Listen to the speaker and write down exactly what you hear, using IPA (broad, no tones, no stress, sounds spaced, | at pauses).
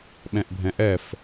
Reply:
ɓ ɛ̃ ʔ bʱ ɛ̃ ʔ ɛ f